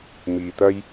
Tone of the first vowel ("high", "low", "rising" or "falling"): low